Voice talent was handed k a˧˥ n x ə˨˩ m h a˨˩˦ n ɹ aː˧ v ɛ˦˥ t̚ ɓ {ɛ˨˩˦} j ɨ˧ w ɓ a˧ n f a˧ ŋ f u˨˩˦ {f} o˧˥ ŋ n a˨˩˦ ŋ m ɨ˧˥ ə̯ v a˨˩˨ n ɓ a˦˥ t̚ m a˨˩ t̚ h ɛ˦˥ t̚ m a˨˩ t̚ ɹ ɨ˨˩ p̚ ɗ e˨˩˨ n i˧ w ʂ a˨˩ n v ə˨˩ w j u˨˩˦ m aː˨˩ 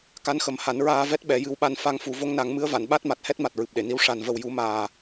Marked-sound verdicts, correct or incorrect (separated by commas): correct, incorrect